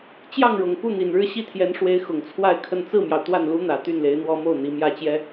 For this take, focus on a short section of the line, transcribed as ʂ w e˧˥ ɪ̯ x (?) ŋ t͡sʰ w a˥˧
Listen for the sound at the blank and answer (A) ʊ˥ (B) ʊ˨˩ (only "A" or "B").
B